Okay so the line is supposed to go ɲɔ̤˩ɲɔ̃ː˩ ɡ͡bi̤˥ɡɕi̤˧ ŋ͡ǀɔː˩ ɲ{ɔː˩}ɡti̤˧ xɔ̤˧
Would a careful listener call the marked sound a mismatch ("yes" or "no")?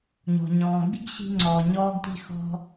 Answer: yes